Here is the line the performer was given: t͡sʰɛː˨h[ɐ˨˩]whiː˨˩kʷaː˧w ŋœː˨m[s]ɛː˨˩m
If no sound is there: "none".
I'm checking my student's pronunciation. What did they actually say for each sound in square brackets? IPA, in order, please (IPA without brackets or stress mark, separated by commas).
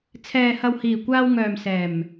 ɐ˨, s